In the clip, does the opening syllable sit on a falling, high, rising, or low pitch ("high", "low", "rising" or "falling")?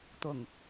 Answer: low